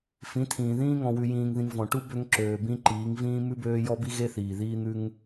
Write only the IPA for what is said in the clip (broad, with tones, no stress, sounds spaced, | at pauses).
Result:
f ĩ˨˦ tʰ ĩː˨ ð ĩː˦ ŋ ɔ̃˨ w ʉ˨ j ĩː˨ ŋ ð ĩ˨ ŋ v ɔ̃˨ ʈ u˦ b ø˦ ŋ ǁ øː˨ b ĩ˦ ǃ iː˨˦ ŋ v ĩː˦ m ʉ˦ b øː˦ j ɔ˦ b i˦ ɣ e˦ θ iː˨ ð iː˦ n̪ ʉ˦ ŋ